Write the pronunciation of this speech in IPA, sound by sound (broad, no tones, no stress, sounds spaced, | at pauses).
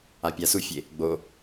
a pʲ a s u fʲ e | ɡ͡b o